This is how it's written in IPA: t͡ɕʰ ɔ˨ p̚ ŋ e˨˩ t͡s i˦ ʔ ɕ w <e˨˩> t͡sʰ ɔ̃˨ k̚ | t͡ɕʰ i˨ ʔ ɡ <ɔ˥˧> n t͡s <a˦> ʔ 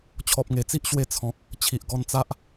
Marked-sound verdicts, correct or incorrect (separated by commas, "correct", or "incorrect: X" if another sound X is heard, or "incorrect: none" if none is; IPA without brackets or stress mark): incorrect: e˧, incorrect: ɔ˧, correct